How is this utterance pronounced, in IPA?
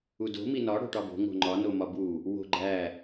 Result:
u d o̤ m i n ɒ ɽ o̤ ʈ ɒ b o̤ ŋ o̤ ŋ͡ǃ ɒ n o m ɒ b u | w o̤ ɡ͡ǃ æ

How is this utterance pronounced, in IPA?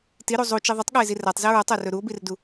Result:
t i ɾ u zˤ u t͡ʃ i ðˤ ɵ tˤ ɠ a e̯ z i r a tˤ z i ɹ ʌ tˤ a r ɵ ɾ u o̯ b i r d u

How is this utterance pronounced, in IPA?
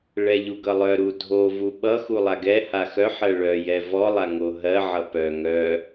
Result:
ɭ ɛ ʎ u ɡ ʌ lˠ œ ɾ u dʱ o v u ɓ ʌ x u lˠ a ɡ ɛ h a x œ ħ ɜ ɭ œ j ɛ v ɔ lˠ a ŋ o ɦ ɜ ʕ ʌ p œ ŋ œ

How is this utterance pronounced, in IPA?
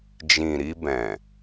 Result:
d͡ʒ ĩ˨ ɾ i˧ b ɛ̃˨

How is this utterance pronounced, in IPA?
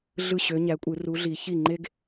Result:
ɮ ɯ˥˩ ɕ ø˨˦ ɲ æ˨˦ kʷʼ ɯ˨˩˦ r u˨˦ ɮ i˨˩˦ ç i˥˩ ŋ͡ǃ e˥ ɡ

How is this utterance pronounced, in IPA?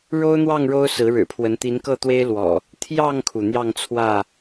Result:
ɻ o˦ ʊ̯ n̪ w ɑ˥˨ ŋ ɻ o˦ ʊ̯ s ɹ̩˨˦ ɻ ɻ̩˨˩ pʰ w ə˨˦ n t̪ i˨˦ n k ɤ˥˨ t̪ w e˦ ɪ̯ l w ɔ̰˨˩ | t̪ʰ j ɑ˥˨ ŋ kʰ u˩ n̪ j ɑ˥˨ ŋ t͡sʰ w ä˥˨

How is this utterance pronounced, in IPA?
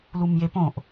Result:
l u m j e p õ ʔ

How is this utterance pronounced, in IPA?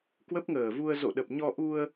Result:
k w ə˦˥ p̚ ŋ əː˨˩ v u˧ ə̯ z o̰˧˨ ɗ ə˨˩ p̚ ɲ ɔ˧ ʔ u˧ ə̯

